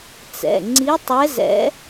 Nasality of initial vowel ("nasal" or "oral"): oral